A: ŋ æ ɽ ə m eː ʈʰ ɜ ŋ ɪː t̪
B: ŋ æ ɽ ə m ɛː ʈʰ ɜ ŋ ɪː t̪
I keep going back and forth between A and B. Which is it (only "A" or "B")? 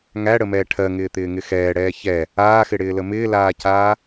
B